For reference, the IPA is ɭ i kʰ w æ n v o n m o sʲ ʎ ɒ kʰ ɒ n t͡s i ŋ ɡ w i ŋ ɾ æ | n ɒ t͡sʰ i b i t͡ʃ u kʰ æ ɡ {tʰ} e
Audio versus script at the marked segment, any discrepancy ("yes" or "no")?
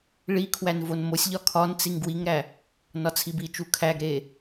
yes